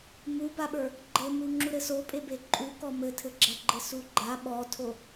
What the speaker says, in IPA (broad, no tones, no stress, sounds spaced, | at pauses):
m u b a ɓ ə˞ | ɡ͡ǃ ɘ m u ŋ͡ǁ u ɾ ɘ s o pʼ e b e ǃʼ u k ɔ m ɘ tʰ ɘ ɡ͡ǁ a ɡ͡ǃ ɘ s u ɡ͡ǃ a ɓ ɔ tʰ o